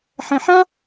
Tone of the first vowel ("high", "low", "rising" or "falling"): low